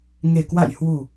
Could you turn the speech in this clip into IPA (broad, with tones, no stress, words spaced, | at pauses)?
ŋe˨˩kwa̰˧˨jhwu˨˩